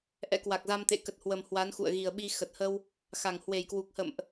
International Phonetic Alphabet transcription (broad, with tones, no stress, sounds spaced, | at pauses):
ʔ ɛ̰˧˥ k w a˨˩ k̚ z a˧ m t̪ ḛ˧˨ k ə˨˩ t̚ h w ə˨˩ m h w a˨˦ n x ṵ˧˨ ə̯ ɣ i˨˩ ə̯ ɓ i˧ x ə˨˩ t̚ h ə˧ w | x a˧˩ ŋ h w e˧˩ j k w u˨˩ k̚ h ə̰˧˨ m ʔ